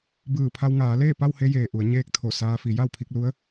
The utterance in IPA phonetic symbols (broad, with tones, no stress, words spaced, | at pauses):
bɯː˧˩ pʰa˧wŋaː˩˧ leː˥˨pa˥˨whe˧jeː˩ ʔu˩˧ə̯ ɲeː˧k̚ t̪ʰo˧˩saː˧fi˩˧ ja˥˨wpʰi˧k̚lu˧˥ə̯